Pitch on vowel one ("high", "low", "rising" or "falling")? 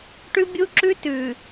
high